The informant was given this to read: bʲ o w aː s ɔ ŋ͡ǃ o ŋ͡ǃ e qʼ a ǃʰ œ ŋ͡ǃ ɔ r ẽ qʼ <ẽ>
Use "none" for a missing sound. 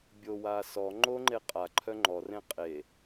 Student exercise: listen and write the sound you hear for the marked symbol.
e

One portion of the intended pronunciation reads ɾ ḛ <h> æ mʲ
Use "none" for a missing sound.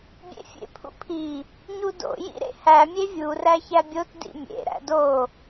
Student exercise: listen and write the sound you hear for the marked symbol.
h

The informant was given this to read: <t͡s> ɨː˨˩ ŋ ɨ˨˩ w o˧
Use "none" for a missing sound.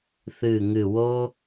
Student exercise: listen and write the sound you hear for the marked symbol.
θ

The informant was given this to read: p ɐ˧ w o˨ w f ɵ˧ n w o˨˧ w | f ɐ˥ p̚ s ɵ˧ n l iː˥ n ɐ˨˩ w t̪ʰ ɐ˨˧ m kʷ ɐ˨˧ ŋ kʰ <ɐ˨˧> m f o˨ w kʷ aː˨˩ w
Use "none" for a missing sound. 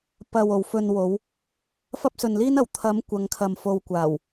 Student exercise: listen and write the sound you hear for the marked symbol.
ɐ˨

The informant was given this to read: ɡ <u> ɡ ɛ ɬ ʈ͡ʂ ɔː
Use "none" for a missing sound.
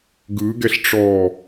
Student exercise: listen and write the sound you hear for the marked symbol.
ɯ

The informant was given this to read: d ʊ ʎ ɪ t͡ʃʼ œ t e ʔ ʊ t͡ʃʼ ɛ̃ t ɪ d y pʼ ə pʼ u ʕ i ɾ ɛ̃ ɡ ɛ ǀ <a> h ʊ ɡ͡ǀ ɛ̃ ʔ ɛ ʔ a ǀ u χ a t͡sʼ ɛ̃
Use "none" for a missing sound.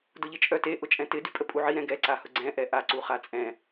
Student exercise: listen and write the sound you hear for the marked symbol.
a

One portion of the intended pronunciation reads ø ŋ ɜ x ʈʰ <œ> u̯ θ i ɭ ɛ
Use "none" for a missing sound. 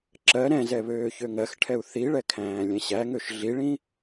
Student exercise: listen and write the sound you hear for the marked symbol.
ɛ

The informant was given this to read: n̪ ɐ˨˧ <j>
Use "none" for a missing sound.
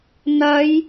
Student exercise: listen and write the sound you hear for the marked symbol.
j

